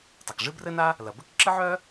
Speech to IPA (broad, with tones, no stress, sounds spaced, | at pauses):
tˤ ɐ˩ k ʐ ɨ˥ b r ɘ˥ n a˥ | l ɐ˩ b ɘ˥ k ǁ ɨ˥ ʕ œ˥